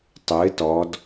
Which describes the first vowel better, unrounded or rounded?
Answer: unrounded